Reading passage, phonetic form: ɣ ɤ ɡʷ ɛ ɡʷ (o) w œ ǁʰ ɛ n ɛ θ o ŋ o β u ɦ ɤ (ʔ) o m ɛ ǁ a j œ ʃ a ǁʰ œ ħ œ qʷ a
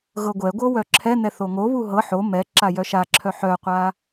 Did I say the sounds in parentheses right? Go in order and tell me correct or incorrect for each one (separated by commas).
incorrect, incorrect